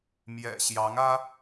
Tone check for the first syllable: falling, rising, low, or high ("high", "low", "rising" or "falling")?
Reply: low